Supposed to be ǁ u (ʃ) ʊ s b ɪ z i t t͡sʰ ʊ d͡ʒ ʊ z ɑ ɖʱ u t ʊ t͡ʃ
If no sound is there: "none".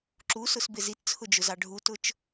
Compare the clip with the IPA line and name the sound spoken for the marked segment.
s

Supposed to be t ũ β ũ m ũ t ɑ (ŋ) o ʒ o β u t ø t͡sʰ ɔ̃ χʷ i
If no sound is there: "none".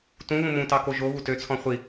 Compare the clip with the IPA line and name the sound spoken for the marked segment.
k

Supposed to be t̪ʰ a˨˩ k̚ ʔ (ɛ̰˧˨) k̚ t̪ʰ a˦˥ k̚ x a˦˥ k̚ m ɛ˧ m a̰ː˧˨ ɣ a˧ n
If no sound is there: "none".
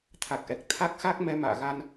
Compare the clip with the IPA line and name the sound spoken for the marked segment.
ɛ˨˩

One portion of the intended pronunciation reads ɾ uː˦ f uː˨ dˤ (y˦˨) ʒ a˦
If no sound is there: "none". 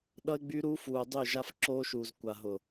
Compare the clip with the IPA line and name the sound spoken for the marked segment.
y˦˨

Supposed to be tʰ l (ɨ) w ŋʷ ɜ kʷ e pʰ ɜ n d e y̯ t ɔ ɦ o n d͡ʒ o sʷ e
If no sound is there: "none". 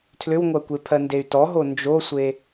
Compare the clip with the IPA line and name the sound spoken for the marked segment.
ʏ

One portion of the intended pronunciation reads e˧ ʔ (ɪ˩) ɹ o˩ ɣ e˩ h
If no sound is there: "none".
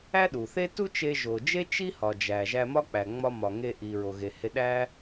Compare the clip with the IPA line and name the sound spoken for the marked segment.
i˩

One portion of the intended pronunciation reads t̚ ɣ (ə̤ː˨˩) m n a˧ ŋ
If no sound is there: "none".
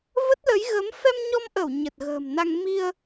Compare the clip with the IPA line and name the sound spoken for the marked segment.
ə̤ː˨˩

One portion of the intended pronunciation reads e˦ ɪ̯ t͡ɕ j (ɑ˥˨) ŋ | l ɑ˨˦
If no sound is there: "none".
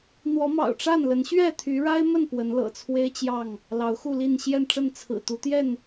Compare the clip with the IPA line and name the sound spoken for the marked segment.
ɑ˥˨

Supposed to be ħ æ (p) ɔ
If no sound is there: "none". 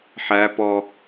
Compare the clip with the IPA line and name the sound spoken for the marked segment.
p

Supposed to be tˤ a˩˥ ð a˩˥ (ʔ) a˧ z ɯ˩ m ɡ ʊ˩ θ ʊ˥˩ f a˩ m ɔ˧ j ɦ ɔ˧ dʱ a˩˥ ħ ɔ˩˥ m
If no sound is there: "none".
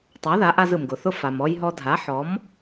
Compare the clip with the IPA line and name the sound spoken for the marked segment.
ʔ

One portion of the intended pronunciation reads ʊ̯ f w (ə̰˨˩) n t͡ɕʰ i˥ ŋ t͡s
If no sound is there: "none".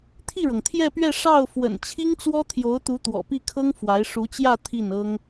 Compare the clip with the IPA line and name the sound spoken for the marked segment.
ə̰˨˩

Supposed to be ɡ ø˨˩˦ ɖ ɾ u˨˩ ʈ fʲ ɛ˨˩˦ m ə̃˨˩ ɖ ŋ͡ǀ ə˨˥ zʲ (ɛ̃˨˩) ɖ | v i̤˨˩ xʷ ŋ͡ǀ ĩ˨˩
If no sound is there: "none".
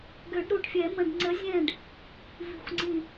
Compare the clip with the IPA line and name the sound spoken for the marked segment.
ɛ̃˦˨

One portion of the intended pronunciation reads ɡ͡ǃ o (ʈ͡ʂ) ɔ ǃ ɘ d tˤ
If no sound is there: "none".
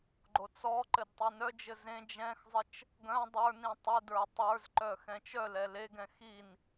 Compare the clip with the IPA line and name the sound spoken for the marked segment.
t͡s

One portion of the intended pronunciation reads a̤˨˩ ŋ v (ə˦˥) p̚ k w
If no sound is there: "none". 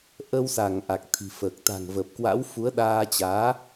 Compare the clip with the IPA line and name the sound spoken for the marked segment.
ə˨˩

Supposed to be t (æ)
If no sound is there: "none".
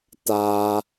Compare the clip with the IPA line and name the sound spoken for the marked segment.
a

